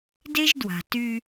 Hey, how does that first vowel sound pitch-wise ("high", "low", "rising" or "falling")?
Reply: high